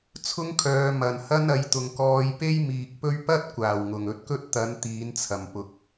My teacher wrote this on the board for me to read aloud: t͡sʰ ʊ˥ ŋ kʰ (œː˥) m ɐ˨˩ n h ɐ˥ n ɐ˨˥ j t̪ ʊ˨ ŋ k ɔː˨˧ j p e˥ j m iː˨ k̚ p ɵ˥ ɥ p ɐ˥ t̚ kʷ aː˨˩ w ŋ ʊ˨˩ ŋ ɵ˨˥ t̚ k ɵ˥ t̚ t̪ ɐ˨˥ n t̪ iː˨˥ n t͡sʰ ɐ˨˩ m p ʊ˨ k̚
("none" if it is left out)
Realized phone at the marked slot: œː˨˧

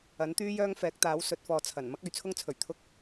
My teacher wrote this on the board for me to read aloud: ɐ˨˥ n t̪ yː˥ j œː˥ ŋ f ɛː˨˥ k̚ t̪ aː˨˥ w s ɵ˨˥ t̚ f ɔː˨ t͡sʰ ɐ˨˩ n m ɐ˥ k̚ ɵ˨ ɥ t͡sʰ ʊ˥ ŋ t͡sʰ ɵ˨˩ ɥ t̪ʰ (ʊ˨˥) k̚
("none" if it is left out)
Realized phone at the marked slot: ʊ˥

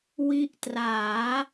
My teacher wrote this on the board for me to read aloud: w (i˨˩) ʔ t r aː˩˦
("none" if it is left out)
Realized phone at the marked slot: i˦˥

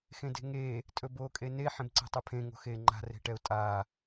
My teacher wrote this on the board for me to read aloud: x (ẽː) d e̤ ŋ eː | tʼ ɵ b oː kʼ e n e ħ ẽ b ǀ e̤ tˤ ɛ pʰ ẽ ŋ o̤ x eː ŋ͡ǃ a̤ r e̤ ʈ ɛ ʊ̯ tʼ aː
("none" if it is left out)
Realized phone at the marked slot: ẽ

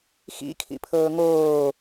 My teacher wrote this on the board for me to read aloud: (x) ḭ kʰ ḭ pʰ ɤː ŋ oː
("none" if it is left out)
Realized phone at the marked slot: x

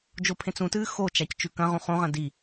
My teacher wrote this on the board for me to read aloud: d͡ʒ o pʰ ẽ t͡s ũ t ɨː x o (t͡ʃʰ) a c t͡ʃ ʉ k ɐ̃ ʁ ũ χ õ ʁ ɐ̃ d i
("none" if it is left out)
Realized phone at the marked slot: t͡ʃ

